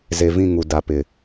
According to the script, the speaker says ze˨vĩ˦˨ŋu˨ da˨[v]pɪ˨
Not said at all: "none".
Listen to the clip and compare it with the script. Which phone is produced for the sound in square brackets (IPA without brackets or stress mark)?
none